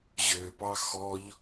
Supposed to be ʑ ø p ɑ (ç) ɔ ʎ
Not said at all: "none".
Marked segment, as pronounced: x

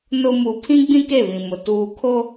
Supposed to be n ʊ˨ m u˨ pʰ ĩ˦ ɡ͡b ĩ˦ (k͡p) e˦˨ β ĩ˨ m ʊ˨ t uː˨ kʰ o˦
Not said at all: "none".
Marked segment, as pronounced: k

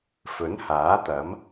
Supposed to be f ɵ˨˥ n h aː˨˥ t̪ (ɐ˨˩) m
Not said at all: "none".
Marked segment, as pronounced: ɐ˨˥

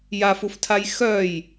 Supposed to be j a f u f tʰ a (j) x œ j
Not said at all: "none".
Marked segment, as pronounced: j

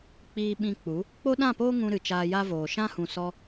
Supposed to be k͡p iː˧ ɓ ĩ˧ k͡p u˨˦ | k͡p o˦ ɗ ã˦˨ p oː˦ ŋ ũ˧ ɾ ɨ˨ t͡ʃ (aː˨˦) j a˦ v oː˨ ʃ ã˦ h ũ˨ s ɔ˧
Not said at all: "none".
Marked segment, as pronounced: aː˧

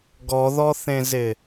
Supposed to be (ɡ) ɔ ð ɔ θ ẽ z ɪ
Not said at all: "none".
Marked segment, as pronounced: ɡ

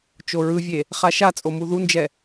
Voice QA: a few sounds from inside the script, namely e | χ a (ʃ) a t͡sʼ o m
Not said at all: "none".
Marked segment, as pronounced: ʃ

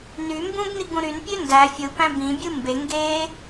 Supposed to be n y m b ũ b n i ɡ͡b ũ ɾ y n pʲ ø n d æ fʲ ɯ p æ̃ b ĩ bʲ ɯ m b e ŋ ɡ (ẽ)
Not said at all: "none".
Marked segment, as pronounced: e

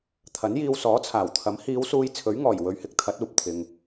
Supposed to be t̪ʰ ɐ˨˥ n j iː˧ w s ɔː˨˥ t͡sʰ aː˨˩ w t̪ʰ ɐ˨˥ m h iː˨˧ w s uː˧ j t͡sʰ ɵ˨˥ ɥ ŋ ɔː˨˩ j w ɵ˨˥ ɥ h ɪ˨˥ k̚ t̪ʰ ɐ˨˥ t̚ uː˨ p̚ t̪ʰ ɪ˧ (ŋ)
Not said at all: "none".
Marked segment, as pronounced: ŋ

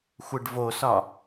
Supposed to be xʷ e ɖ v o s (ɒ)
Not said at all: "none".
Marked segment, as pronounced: ɒ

